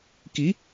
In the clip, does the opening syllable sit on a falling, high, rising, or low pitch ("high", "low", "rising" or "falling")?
rising